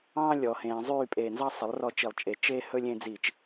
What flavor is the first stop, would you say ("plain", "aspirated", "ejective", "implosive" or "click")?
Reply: ejective